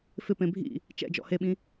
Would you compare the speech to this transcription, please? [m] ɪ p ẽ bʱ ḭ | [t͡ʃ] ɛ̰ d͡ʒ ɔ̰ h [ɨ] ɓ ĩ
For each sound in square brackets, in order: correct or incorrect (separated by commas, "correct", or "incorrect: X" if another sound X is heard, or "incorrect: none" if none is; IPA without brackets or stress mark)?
incorrect: f, correct, incorrect: e